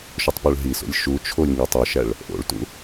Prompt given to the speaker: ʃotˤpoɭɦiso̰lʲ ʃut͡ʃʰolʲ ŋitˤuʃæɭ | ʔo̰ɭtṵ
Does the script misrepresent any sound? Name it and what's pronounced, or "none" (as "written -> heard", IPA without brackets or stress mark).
none